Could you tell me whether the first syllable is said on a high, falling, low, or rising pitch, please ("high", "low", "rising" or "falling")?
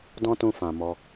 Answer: high